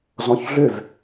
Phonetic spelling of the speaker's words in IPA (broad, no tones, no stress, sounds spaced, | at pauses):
z ɔ̃ ç ɮ ø v